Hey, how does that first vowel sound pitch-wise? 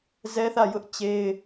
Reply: high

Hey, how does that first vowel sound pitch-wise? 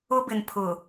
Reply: high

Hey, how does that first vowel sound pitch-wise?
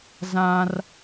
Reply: high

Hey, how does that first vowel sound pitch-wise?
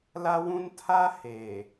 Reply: high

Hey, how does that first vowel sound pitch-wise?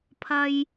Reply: high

